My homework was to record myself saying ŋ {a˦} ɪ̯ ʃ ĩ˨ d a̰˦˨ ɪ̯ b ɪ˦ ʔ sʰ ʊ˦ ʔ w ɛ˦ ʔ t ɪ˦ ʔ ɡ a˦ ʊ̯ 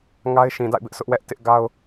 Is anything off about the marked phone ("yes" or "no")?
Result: no